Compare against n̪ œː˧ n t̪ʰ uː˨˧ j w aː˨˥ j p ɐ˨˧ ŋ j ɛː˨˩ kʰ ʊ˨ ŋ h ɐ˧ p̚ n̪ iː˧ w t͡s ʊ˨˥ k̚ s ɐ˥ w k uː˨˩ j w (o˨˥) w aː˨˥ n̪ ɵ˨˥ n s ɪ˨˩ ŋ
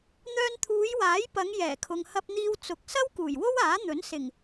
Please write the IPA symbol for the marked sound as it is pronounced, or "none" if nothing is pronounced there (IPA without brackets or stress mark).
o˥